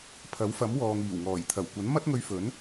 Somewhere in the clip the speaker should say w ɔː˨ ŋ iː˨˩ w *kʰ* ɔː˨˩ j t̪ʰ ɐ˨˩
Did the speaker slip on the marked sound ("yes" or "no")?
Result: yes